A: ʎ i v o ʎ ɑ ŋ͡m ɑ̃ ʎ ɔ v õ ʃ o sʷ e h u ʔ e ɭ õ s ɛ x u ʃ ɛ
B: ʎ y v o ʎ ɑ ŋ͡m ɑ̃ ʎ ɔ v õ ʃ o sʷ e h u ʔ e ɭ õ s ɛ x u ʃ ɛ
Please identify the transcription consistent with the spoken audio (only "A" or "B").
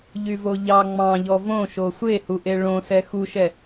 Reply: B